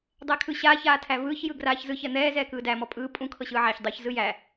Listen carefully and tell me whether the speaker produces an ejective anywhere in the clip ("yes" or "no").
yes